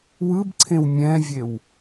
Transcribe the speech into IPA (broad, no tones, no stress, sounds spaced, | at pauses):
w ɯ b ǀʰ ẽ w mʲ ɛ̃ vʲ e w